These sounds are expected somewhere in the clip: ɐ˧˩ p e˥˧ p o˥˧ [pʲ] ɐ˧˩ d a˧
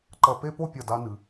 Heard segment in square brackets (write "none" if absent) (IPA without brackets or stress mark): pʲ